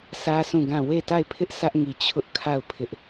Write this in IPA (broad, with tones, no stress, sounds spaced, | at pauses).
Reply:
sʰ ä˦ sʰ ũ˦˨ ɡ ã˦˨ w e˦˨ t a˦˨ ɪ̯ pʰ ɪ˦ ʔ sʰ ä˦ ʔ ŋ i˨ t͡ɕʰ ʊ˦ ʔ kʰ a˦˨ ʊ̯ pʰ ɪ˦ ʔ